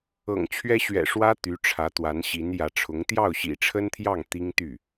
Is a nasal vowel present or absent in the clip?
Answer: absent